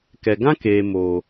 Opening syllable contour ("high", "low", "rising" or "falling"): low